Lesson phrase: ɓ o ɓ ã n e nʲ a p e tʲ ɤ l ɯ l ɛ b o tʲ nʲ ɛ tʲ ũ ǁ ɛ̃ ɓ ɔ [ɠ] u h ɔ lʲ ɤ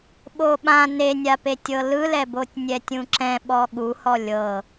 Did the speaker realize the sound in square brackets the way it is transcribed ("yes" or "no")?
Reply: yes